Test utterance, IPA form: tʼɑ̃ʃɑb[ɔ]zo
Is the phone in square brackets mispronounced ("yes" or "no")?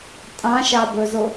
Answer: yes